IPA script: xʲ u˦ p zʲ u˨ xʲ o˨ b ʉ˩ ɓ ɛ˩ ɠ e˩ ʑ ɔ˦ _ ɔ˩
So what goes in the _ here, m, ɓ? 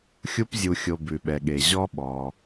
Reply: ɓ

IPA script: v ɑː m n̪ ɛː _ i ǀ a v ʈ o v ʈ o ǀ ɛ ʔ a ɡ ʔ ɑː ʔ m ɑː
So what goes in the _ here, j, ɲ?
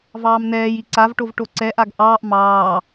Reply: j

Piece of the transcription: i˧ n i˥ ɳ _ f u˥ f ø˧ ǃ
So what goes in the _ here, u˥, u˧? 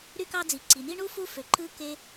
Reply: u˥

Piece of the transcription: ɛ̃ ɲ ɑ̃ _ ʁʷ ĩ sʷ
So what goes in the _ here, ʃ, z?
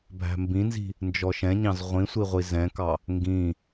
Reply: z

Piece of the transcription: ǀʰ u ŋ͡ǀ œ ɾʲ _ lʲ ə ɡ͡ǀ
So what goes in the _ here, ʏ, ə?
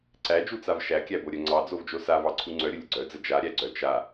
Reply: ə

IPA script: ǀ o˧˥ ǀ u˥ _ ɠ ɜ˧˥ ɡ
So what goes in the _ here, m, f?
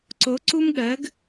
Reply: m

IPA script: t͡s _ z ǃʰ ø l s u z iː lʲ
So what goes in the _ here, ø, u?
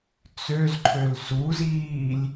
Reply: ø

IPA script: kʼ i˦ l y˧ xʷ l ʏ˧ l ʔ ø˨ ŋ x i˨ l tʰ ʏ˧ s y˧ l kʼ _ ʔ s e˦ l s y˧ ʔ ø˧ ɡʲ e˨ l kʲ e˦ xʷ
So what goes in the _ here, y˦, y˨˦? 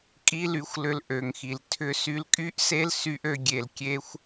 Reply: y˦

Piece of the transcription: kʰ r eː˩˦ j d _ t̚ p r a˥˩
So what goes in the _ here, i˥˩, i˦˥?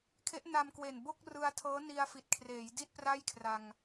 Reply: i˥˩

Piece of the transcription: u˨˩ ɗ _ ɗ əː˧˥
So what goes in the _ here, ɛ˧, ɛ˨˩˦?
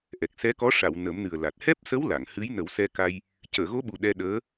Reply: ɛ˧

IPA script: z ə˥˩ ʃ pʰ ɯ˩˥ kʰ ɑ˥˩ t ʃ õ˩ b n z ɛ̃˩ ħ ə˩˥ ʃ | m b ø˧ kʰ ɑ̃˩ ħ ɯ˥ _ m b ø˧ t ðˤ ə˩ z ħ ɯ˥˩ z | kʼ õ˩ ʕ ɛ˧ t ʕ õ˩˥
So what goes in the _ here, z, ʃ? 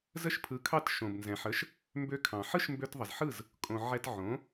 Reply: ʃ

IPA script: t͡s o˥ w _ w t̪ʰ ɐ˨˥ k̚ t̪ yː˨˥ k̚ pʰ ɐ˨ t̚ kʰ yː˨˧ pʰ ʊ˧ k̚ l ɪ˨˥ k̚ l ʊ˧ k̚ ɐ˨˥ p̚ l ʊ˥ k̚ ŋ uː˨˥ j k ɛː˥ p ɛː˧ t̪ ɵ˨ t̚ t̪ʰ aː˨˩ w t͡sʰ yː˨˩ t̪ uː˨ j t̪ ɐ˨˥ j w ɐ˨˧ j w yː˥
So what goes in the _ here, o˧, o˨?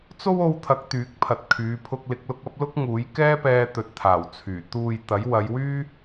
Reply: o˧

